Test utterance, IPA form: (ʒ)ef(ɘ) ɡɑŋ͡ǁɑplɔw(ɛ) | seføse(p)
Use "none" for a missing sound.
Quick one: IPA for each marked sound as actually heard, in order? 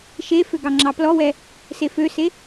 ʃ, ø, ɛ, none

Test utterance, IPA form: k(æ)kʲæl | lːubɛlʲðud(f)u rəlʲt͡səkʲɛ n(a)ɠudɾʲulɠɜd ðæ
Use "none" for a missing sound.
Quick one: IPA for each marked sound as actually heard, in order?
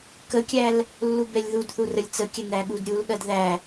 ə, θ, æ

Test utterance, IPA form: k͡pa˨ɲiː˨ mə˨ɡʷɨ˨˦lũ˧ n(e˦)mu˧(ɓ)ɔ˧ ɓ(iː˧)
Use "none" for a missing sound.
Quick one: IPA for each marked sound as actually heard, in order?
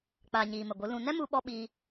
ɛ˦, ɓ, iː˧

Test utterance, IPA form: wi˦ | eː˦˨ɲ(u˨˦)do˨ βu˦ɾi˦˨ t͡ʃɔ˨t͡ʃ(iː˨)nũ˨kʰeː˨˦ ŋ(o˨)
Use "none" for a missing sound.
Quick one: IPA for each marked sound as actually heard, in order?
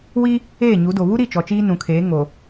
u˨˦, iː˦, o˨

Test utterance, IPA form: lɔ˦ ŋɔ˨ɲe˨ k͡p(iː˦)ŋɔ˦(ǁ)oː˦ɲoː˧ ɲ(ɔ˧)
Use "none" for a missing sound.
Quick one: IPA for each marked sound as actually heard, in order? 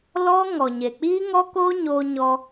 iː˦, k, ɔ˧

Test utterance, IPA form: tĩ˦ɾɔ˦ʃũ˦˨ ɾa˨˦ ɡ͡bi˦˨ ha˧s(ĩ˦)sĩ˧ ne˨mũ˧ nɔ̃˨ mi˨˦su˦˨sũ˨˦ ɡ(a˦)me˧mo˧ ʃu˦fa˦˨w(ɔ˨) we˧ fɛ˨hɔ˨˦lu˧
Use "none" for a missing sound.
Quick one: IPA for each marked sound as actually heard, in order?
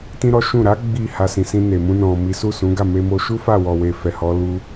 ĩ˨, a˦˨, ɔ˨

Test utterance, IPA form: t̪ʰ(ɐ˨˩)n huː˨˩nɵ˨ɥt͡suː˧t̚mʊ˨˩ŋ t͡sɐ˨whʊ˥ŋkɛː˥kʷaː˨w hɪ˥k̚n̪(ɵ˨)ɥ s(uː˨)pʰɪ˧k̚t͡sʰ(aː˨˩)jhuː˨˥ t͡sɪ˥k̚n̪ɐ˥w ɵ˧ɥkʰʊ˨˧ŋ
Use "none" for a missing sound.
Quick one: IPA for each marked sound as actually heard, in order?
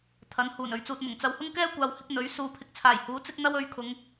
ɐ˨˥, ɵ˨˥, uː˨, aː˨˩

